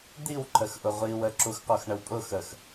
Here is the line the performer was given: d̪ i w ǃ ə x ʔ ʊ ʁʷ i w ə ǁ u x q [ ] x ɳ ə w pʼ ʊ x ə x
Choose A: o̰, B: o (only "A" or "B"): B